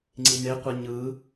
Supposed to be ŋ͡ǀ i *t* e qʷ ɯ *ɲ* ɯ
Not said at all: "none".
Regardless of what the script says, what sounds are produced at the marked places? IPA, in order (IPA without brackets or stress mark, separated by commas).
n, ɲ